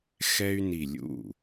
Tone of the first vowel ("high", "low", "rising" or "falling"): high